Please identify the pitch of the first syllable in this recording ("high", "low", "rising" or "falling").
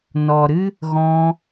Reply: low